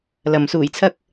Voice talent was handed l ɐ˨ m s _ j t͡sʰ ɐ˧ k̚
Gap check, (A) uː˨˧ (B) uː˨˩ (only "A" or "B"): B